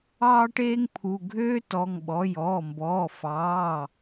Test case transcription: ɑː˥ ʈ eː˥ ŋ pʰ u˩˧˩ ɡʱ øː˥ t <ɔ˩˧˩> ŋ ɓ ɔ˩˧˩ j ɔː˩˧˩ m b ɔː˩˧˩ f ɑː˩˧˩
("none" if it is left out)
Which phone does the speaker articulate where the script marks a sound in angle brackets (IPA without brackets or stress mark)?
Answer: ɔ˩˧˩